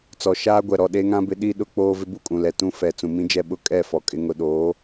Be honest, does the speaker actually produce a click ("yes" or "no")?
no